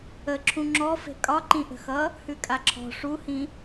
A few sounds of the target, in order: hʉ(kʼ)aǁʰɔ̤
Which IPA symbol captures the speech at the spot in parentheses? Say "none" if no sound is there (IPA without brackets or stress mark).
kʼ